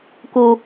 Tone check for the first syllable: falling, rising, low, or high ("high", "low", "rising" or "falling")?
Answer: low